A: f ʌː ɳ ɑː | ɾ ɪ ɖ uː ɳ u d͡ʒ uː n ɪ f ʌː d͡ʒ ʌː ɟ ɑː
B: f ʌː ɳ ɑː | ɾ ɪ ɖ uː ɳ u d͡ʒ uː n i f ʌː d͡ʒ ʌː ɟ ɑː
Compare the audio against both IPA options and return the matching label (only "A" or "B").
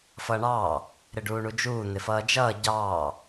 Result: A